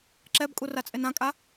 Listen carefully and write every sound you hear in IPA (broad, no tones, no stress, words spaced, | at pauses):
ǁɛbkʼurat͡sʼen ãkʼa